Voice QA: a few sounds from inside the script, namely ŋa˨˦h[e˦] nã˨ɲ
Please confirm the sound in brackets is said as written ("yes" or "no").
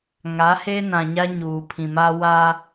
yes